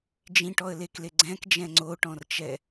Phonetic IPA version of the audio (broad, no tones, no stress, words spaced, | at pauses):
d͡ʒĩʈɔə̯lekle ɡ͡ǀɛ̃kd͡ʒɛ̃ ŋ͡ǀoʈɔ̃rt͡ʃɛ